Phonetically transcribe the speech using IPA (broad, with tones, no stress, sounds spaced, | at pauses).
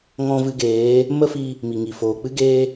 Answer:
ŋ ɔ̃˧ v ɨ˧ ɡ eː˨˦ | m ə˦ f i˧ | m i˨ ŋ i˨ f oː˨ k͡p ɨ˦ ɡ eː˦